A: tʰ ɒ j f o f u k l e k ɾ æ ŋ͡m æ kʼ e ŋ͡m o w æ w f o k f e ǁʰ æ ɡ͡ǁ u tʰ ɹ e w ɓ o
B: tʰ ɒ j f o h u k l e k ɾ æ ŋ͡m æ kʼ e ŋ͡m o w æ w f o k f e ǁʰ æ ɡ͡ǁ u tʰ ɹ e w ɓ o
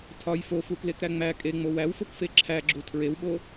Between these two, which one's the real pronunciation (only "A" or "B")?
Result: A